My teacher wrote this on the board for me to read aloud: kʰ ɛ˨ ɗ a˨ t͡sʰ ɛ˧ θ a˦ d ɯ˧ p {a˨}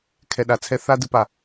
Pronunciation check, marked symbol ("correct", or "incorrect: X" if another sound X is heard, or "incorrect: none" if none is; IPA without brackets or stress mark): correct